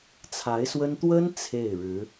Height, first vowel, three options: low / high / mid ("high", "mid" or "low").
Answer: low